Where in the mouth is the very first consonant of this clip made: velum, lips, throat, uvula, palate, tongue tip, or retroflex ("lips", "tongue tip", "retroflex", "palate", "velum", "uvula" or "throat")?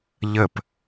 palate